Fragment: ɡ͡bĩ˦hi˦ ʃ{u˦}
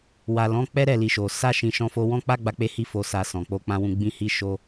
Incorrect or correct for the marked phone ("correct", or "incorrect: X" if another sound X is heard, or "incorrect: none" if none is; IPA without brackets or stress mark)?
incorrect: o˦